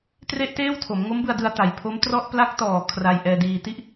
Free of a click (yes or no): yes